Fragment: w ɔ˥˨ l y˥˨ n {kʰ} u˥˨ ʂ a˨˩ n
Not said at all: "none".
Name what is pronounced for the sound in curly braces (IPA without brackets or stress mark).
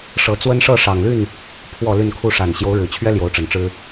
kʰ